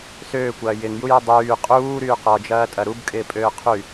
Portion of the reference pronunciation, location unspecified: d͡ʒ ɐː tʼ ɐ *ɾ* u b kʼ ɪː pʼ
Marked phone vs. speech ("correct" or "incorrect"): correct